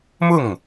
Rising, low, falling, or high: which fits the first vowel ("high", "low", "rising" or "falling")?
falling